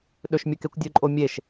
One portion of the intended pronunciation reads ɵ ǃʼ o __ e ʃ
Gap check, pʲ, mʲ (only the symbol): mʲ